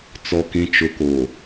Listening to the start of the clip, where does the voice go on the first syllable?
low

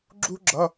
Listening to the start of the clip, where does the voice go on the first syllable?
high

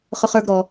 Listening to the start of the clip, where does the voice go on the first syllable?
high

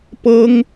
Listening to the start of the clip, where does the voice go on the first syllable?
high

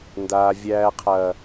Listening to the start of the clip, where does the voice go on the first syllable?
low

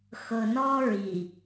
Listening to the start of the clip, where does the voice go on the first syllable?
low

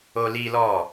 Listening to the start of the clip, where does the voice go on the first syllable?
high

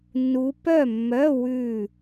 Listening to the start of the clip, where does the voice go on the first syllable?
rising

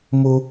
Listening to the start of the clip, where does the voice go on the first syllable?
high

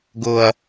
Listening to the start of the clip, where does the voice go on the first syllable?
low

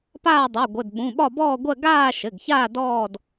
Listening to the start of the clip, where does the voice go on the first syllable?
falling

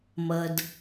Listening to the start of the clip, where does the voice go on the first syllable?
low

